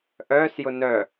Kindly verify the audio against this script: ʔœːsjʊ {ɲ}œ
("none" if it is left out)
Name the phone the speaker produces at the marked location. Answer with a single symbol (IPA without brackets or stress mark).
n